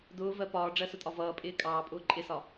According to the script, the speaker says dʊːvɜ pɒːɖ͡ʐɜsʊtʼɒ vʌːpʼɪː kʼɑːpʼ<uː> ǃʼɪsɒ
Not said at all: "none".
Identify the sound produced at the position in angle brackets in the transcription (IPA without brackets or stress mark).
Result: ʊː